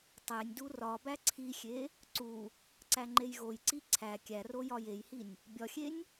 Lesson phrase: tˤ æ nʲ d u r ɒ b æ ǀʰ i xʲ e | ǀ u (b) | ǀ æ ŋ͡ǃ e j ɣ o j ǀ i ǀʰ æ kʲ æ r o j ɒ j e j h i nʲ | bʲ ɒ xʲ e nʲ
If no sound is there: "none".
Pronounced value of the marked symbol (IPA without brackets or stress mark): none